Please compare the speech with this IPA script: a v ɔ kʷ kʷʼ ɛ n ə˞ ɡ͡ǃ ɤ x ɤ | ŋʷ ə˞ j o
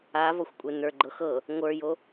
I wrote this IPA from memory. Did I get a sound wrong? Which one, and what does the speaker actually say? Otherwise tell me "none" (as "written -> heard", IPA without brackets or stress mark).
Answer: kʷ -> xʷ